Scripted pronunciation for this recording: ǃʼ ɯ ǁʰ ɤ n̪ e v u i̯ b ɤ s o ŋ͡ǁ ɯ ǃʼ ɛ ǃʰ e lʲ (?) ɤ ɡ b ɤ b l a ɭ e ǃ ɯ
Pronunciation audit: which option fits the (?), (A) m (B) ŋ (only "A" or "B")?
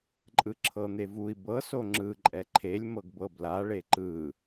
A